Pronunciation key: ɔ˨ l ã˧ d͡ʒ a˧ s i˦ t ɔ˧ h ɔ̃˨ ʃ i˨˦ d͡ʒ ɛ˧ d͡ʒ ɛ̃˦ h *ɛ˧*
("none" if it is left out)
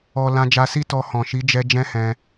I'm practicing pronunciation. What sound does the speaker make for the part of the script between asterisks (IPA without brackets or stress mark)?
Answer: ɛ̃˧